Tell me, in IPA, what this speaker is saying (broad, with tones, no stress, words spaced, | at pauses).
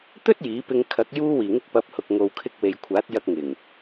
t̪ɵ˥t̚ jiː˨˥pɪ˧ŋ kʰɐ˨˥k̚juː˥wiː˨˩ŋɪ˥k̚ pɐ˨˥p̚hʊ˨k̚ŋo˨wkʰɪ˧k̚ we˨jkʷʰaː˨˥t̚jɐ˧k̚ŋɪ˨˩ŋ